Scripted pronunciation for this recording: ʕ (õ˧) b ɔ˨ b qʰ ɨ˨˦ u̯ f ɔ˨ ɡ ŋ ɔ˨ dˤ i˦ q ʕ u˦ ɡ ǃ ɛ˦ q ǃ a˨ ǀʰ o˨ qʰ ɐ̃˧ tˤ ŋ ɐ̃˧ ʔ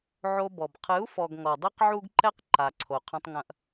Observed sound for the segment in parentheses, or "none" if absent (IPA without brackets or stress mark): o˧